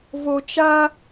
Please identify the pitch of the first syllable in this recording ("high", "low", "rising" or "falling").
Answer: low